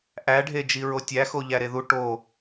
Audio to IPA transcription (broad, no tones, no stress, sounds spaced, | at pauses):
ʔ æ ɖʱ e d͡ʒ i ɹ o tʲ æ x o ʎ æ ɾ e ð u ʈ o